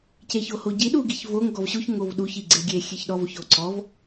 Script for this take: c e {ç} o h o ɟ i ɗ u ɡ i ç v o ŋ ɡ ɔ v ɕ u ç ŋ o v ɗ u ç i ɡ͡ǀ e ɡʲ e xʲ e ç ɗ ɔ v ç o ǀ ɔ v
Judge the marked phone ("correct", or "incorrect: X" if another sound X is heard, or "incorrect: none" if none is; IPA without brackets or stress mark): correct